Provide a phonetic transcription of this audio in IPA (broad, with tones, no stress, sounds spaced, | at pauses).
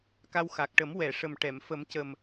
k a˧ w x a˨˩ k̚ ʈ ə˨˩˦ m w ɛ˨˩˨ ʂ ə˨˩ m ʈ ɛ˨˩˨ m f ə˨˩˦ m c ə˨˩ m